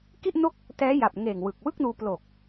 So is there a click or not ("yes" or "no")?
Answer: no